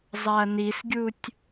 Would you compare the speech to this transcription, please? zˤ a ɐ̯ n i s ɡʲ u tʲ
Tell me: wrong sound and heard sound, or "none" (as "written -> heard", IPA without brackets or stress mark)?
none